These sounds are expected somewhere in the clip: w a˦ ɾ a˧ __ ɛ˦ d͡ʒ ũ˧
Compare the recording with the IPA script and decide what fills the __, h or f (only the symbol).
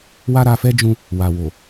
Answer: f